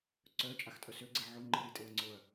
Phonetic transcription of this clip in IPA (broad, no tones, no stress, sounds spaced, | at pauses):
ǀ œ t͡ʃʼ a x tʼ œ s ø ɡ͡ǀ e ʕ o ŋ͡ǃ i ɾ i tʼ e ɐ̯ ŋ͡ǀ o ɐ̯